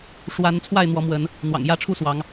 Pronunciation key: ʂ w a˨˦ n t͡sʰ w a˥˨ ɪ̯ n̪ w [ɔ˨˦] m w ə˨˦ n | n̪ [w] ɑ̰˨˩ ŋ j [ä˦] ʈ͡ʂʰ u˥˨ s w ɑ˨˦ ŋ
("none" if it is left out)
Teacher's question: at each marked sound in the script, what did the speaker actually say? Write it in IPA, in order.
ɔ˨˦, w, ä˦

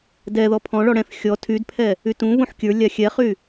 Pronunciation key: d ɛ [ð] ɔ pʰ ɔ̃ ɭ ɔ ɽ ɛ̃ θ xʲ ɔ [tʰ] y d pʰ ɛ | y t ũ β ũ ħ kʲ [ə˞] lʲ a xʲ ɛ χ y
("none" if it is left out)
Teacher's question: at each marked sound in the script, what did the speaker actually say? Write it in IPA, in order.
ð, tʰ, ə˞

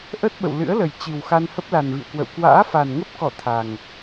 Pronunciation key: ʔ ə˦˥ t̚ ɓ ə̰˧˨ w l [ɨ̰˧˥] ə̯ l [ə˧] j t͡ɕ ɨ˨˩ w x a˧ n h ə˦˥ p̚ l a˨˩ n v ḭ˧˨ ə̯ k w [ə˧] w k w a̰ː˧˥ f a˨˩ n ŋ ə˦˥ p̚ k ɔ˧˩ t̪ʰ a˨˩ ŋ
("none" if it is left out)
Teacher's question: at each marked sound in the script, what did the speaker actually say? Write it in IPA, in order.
ɨ̰˧˥, ə˨˩, ə̰˧˨

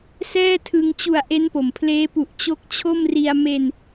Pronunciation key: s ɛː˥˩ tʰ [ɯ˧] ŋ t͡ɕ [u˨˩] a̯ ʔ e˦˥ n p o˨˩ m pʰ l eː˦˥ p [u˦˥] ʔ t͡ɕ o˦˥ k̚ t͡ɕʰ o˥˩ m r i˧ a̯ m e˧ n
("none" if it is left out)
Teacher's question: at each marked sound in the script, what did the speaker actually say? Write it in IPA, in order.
ɯ˧, u˨˩, u˨˩

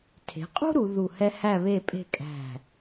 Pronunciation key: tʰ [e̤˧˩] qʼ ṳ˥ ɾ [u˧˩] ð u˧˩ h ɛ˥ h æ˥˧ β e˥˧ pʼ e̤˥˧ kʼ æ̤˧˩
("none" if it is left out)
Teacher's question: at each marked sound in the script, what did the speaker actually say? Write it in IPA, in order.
e̤˩˧, u˩˧

